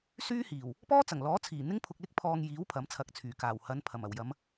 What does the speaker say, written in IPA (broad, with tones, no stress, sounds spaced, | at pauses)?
s yː˥ h iː˨˩ w | p ɔː˥ t͡s ɐ˨˩ ŋ l ɔː˨˥ t͡sʰ iː˨˩ n̪ ɪ˥ ŋ pʰ ʊ˧ k̚ l ɪ˥ k̚ pʰ ɔː˧ ŋ j iː˨˥ w pʰ ɐ˨˥ m t͡sʰ ɐ˨˥ k̚ t͡sʰ yː˨˩ k aː˨˩ w h ɐ˨˧ n pʰ ɐ˨˩ m ɐ˨˩ w j ɐ˨˧ m